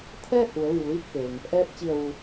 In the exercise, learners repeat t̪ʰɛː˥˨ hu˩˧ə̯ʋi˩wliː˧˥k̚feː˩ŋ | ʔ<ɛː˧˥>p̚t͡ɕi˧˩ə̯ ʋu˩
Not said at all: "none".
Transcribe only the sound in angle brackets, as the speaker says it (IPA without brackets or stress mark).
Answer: ɛː˧˥